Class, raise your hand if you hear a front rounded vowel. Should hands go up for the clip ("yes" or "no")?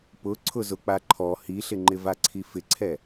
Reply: no